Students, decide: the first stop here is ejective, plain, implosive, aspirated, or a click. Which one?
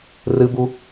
plain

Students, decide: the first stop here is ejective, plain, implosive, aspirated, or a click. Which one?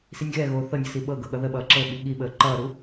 implosive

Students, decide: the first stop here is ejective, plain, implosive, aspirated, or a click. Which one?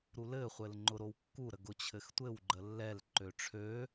click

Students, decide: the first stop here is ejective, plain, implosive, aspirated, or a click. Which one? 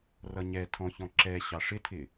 aspirated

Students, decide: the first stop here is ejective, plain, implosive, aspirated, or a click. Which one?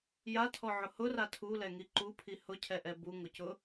aspirated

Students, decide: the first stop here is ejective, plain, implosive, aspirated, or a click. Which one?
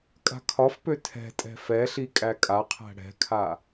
ejective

